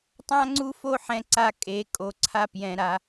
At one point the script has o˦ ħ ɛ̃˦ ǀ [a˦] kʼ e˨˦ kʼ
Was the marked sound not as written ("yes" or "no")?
no